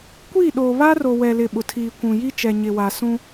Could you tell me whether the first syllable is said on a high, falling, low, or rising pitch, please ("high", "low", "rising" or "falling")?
falling